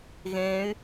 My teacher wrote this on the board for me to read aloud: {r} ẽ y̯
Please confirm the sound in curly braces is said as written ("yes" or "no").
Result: no